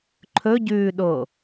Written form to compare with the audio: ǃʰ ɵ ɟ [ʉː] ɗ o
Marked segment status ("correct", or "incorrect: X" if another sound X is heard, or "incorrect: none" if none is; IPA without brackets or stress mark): correct